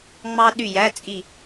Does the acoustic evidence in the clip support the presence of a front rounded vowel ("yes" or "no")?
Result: yes